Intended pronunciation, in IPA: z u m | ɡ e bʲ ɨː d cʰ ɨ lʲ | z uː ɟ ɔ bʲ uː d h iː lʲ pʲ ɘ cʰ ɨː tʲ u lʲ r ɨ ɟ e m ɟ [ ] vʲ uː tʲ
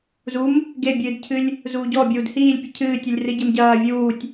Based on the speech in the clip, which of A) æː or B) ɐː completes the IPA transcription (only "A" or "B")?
B